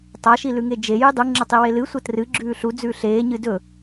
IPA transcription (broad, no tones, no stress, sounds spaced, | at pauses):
tˤ a ʃ i l ʉ ŋ e d͡ʒ e j ɨ dˤ u ŋ͡ǁ ɐ tˤ i w e l ɨ sʷ ɐ t r ɨ ɡ͡ǁ ʉː ɬ u d͡z ʉː ɬ eː ɲ ɨ d ɵ